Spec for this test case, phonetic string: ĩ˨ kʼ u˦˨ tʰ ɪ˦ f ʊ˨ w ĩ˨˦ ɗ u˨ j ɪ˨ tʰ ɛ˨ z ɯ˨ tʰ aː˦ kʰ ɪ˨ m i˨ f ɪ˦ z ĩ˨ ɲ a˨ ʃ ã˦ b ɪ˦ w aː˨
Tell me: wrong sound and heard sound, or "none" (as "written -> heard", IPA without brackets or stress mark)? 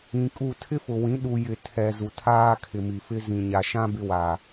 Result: ɯ˨ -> u˨